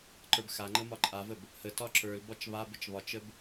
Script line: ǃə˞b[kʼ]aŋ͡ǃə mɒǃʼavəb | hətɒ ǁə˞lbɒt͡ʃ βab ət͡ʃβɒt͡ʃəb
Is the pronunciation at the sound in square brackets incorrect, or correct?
incorrect